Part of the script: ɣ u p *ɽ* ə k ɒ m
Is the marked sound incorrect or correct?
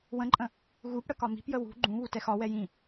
correct